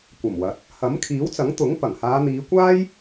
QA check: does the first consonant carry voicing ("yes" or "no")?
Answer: no